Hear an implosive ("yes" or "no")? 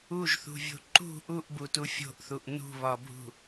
no